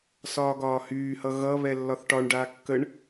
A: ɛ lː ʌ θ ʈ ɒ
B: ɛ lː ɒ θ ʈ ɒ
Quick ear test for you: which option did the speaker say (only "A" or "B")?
B